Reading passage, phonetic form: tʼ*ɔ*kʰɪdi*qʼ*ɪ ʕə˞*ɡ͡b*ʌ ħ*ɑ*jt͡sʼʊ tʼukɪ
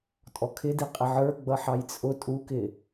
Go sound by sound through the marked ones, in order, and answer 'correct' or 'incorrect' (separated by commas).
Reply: correct, correct, correct, correct